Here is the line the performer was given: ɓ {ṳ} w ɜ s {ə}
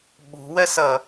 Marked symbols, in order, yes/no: yes, no

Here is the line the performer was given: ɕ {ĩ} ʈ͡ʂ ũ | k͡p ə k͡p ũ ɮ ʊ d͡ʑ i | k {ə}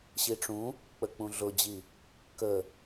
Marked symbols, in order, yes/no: no, yes

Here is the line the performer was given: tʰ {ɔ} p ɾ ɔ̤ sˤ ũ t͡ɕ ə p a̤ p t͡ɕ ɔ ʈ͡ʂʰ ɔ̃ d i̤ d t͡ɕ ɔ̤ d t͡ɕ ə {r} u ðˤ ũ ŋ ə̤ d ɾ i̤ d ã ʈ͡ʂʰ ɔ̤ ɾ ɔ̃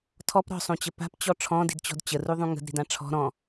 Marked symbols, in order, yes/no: yes, yes

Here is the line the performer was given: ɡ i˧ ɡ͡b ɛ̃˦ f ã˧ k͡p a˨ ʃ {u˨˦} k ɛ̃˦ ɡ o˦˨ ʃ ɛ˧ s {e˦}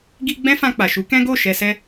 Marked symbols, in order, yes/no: yes, no

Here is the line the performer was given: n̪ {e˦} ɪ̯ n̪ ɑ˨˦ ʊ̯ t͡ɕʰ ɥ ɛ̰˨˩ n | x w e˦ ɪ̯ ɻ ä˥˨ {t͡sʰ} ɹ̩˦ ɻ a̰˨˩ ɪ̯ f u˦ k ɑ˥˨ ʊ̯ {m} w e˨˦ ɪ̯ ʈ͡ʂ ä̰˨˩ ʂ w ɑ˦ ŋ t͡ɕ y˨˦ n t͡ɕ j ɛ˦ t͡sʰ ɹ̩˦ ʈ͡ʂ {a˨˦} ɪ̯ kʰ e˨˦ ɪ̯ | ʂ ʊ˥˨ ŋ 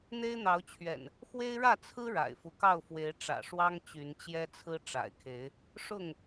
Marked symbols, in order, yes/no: yes, yes, no, no

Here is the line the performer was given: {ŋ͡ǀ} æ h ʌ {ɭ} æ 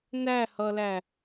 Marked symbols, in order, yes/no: no, no

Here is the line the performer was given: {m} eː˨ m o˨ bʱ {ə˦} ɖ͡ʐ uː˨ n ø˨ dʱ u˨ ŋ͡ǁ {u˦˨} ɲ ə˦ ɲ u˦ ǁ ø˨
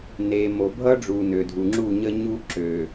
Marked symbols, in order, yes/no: no, no, yes

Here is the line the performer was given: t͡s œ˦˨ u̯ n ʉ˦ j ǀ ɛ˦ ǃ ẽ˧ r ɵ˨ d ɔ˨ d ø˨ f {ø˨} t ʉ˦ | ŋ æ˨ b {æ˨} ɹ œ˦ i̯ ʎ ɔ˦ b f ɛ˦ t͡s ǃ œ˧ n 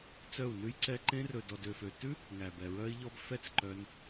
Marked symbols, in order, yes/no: yes, no

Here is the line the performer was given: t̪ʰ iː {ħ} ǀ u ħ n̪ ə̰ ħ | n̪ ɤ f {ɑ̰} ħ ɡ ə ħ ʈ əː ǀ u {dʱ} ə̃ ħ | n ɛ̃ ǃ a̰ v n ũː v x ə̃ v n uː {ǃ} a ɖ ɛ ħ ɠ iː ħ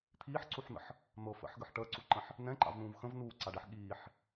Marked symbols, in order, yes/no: yes, no, no, no

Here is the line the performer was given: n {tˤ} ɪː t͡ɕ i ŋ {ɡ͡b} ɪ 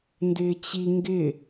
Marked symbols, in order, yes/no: no, no

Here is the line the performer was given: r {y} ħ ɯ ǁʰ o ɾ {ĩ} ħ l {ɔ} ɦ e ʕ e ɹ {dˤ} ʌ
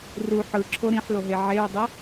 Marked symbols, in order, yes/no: no, yes, no, yes

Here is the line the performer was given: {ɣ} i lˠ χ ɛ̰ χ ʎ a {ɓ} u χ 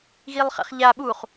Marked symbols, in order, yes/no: yes, yes

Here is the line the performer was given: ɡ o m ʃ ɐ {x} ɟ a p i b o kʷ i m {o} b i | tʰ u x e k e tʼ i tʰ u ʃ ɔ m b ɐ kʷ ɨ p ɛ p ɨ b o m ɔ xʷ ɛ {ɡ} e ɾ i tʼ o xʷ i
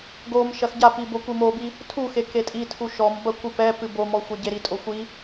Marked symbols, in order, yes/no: yes, yes, no

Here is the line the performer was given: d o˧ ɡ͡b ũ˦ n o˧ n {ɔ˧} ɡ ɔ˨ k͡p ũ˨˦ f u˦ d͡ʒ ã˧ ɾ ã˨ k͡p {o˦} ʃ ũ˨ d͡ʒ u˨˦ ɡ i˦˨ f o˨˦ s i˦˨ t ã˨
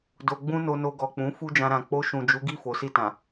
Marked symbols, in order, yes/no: no, no

